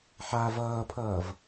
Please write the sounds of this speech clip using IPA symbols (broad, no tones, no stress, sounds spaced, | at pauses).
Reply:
ħ a v ʌː pʰ ʌː v